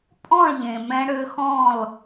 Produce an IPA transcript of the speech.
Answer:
pʼɔ̃˦˨ɭʎẽ˨ mɛ̃˧ɽø˧xɔ̃˦˨l

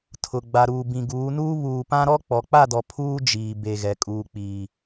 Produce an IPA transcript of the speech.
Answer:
tʰʊ˨ ɡ͡ba˨ɾuː˨ bĩ˨ɡuː˨˦nuː˦ βuː˨pã˦ɾɔ˦ k͡pɔ˨k͡pa˦˨dɔ˨ pʰuː˦d͡ʒiː˨ be˨ɣɛ˨ kʼuː˨k͡piː˨

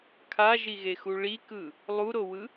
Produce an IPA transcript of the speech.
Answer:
kʰaʒiɣexu ɭikɯ | lˠuɾowɯ

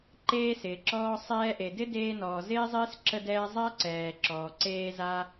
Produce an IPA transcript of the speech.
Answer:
ǃeː˧sɪː˩ǁɔː˧ sˤɛː˧ʔe˩ dɪ˥deː˧nɔː˩ zɪː˥zˤɪː˥s ǁə˧dɛː˧ zˤa˥ǀɛː˩ǁɔː˩ǀeː˧ za˧

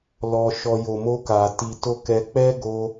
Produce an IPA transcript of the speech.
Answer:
lɔ˨ʃɔ˨ jo˨mo˧ka˨ ti˨to˧ kɛ˧ k͡pɛ˦ɡo˧

